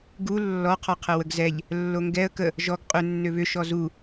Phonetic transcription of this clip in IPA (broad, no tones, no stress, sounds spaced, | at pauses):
ɡ u lː ɔ qʰ ɔ qʰ ə w ə ɡ z ɛ ʎ | lː o ŋ ɡ ɛ ə̯ k ə | ʒ ɔ ɡ qʼ ʏ nː ʏ β ʏ ʃ ɔ z u